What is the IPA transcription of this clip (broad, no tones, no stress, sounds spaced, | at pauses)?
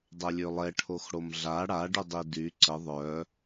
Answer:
dˤ ɛ lʲ ø lˠ ɛ ʈʰ o x ɽ o m ɮ a ɽ a ɖ y dˤ i d y ǀ ə ðˤ œ